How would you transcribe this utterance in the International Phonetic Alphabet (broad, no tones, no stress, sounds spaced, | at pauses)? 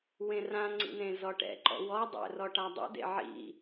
w ẽ r ã ŋ͡ǀ ḭ n ẽ z ɔ ʈ ɛ̰ ǃ ɔ̰ w ɔ dˤ ɛ̰ r ɔ ʈ a dˤ ḛ d ḛ ʕ ḭ